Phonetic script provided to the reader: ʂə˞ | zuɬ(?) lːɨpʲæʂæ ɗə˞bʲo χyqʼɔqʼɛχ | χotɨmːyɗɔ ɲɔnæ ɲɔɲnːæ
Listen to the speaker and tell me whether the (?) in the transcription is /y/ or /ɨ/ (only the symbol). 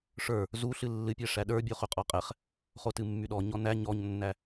ɨ